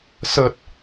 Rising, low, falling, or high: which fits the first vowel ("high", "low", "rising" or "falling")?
low